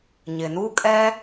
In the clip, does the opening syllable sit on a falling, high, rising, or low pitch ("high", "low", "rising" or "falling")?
low